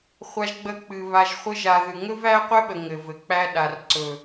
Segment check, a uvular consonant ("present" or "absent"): present